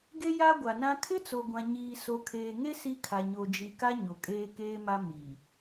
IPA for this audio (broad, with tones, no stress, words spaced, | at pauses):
ɡe˦ja˦ ɡʷa˨nã˦ kʰɪ˦t͡so˨ɡʷã˨ ɲiː˨so˨kʰeː˨ŋe˦ si˦kʰa˨ ɲo˨d͡ʒi˨ka˦ ɲo˨kʼeː˦keː˦ma˦ mi˨